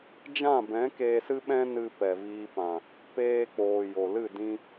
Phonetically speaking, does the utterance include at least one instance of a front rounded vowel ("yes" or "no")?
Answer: no